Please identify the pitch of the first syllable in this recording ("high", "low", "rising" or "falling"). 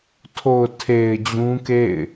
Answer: low